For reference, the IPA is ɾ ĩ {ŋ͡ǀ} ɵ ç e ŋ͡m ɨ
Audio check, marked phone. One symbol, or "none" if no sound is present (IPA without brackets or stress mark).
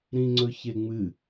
ŋ͡ǀ